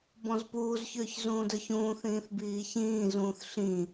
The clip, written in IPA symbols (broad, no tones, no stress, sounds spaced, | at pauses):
b ɔ̃ z p uː z ç ʏː ç z ũː d ə˞ ç ũː θ ĩː θ b iː ç ĩː z ũː θ ɬ ĩ